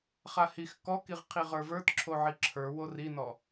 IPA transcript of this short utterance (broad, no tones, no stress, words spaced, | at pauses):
χahix kɔkiʁ qʰiʁə˞və˞t ǁʰoʕiǁʰə˞ worinɔ